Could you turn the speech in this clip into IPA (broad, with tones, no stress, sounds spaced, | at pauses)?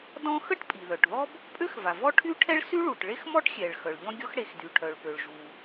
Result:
d ɔ̃˥ x ə˥ ʈ pʼ i˩ ð œ˩ ʈ ð ɔ˥ b | pʼ ø˥ x v a˩ v ɔ˥ ʈʰ y˥ ʈʰ ɛ˥ ɭ s y˥ ɭ u˩ ʈ ɭ e˥ x m ɔ˥ ʈ xʲ ɛ˩ ɭ x œ˩ ɭ ʎ ɔ̃˥ ɡʲ ɔ˥ x ɽ e˩ x d y˩ ʈʰ œ˩ ɭ p ø˩ ɭ ʒ u˩